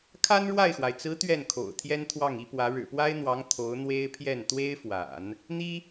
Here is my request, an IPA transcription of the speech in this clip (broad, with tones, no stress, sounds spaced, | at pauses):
kʰ a˥ n ɻ w a˥˩ ɪ̯ x w a˩ ɪ̯ t͡s ɹ̩˧˥ t̪ ɥ ɛ˥˩ n kʰ o̰˨˩ ʊ̯ t̪ʰ j ɛ˥ n t̪ʰ w ɑ˥˩ ŋ i˥ p w ä˧˥ ɻ ɻ̩˨˩ p w a˥ ɪ̯ n̪ w ɑ˧˥ ŋ t̪ʰ o˧˥ ʊ̯ n̪ w e˥ ɪ̯ pʰ j ɛ˥˩ n t̪ w e˥ ɪ̯ f w a̰˨˩˦ n | n̪ i˥